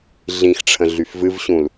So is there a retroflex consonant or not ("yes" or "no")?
yes